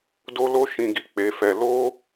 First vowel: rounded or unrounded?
rounded